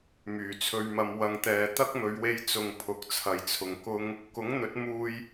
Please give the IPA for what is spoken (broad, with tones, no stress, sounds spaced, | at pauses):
m yː˨˩ t͡sʰ ɵ˧ ɥ m ɐ˧ m w ɐ˨ ŋ t̪ ɛː˨ t̪ ɐ˥ k̚ m ɵ˨˧ ɥ w e˧ j t͡s ʊ˨ ŋ pʰ ʊ˨˥ k̚ t͡sʰ ɐ˨ j t͡sʰ ʊ˨ ŋ k ʊ˥ ŋ | k ʊ˨˥ ŋ n̪ ɵ˨˥ t̚ m uː˧ j